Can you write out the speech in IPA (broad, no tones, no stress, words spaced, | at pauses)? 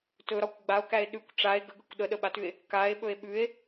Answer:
tɵɾɒkʷ ɡ͡bao̯kæe̯ ɗʉkʷ ʈ͡ʂae̯ ɡəɡəkʷ ɗəɗəɓatʉe̯ | kae̯ɓɵe̯ ɓʉe̯